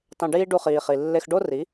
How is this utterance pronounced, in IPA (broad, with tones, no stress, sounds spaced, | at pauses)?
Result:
tˤ ẽ˧ ɖ iː˦ ɖ u˧ χ iː˨ χ i˨ lː e˧ x ɖ o˦ r i˨˦